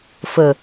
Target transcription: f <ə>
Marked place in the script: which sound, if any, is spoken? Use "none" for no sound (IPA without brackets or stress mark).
ə